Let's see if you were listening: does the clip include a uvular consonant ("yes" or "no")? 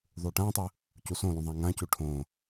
no